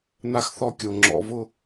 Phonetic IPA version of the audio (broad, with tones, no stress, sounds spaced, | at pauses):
n̪ a˦ x θ ɔ˦ kʲ o˨ ŋ͡ǁ ɔ̰˨ v ʊ˦